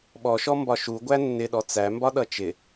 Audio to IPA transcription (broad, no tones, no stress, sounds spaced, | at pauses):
ɓ ɔ ʃ ɔ m b ɒ ʃ u ɡʷ æ nː ɪ ɗ ɔ t͡s æ m b ɒ ɗ ʌ t͡ʃ ɪ